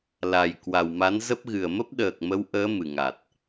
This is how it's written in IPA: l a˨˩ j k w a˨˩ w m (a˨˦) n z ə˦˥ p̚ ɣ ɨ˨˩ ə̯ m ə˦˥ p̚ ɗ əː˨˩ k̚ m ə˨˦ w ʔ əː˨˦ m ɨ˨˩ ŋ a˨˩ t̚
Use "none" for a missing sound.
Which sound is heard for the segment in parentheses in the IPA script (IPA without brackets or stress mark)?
a˨˦